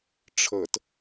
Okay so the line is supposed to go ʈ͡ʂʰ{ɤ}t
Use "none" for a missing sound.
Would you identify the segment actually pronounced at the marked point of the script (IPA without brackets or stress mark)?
ɤ